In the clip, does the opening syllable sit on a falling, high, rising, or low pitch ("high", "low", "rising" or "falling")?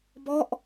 falling